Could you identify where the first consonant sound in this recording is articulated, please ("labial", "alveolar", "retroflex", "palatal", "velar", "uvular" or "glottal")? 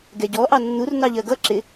velar